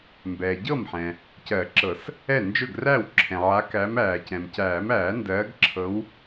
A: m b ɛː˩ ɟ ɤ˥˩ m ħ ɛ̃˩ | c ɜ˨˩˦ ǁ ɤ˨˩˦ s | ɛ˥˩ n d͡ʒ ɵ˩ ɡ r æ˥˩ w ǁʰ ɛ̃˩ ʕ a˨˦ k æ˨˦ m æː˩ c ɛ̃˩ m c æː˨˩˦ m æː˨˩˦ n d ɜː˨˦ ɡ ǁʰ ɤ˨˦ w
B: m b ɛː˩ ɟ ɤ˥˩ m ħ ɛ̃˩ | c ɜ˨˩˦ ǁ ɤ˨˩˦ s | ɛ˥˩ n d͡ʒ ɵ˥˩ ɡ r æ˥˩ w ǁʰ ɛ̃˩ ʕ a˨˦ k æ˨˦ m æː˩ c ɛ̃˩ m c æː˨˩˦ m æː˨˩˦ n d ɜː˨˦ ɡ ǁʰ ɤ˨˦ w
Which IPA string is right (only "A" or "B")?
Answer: B